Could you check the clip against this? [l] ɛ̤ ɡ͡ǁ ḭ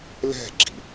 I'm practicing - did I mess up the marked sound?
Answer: no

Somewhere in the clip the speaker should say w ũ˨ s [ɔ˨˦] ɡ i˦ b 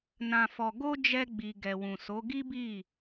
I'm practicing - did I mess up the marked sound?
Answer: yes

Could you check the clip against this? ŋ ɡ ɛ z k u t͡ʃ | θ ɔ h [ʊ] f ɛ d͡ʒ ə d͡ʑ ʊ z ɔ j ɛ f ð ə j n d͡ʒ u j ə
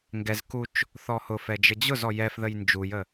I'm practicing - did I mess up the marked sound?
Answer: no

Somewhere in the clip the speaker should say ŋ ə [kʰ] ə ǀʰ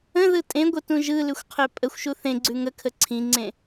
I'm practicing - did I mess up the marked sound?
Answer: no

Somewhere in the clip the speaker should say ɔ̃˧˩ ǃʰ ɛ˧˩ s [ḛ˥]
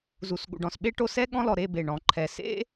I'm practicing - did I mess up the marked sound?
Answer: no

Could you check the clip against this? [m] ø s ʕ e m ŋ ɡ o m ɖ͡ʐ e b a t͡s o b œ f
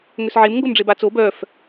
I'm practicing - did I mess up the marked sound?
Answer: yes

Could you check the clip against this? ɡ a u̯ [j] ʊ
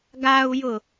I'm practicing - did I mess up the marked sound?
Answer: no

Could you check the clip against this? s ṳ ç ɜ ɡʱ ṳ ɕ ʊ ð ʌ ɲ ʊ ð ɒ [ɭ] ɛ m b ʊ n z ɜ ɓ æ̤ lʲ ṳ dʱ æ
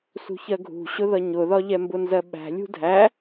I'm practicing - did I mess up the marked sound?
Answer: yes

